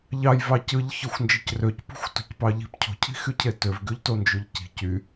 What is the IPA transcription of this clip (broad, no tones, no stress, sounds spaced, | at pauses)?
ʎ ɑ j v ɑ c ɯ ʎ ç ɯ xʷ n d͡ʒ ɯ c r ø c p ṳ xʷ t o̤ c p ɑ ʎ i̤ p cʰ o̤ cʰ i̤ x y cʰ e t ø v ɡ y ʎ t o n d͡ʒ y ʎ c i̤ c y